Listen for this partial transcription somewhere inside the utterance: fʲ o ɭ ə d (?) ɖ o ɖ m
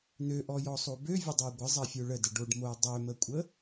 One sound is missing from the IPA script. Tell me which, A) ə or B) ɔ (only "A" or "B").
A